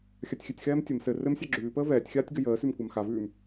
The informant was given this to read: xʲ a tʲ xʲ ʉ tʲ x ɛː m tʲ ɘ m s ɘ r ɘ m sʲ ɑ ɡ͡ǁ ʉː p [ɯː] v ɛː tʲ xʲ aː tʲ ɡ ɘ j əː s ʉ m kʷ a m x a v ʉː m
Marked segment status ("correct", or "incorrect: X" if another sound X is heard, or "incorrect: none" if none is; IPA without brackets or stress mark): incorrect: əː